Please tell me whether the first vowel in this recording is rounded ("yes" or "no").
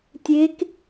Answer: no